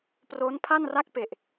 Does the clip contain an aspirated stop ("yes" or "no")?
yes